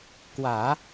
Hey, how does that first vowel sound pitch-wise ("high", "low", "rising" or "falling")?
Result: low